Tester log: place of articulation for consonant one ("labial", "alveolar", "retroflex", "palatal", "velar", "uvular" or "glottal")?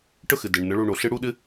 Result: retroflex